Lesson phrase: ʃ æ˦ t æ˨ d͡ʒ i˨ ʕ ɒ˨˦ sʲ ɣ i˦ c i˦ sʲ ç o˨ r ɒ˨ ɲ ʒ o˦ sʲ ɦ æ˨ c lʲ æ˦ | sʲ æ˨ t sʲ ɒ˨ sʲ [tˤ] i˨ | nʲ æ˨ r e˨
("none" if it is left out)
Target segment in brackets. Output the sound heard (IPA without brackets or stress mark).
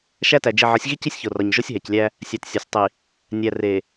tˤ